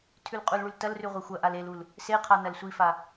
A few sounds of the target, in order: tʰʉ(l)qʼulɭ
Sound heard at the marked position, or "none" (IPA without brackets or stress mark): l